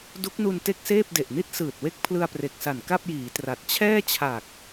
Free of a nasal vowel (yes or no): yes